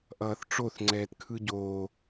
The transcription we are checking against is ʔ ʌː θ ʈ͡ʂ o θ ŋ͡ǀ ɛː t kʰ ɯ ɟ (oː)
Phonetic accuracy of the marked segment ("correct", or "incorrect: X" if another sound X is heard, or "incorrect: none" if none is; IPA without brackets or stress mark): correct